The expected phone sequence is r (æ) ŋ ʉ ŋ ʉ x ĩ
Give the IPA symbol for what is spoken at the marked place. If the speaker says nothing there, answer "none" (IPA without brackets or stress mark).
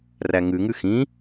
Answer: æ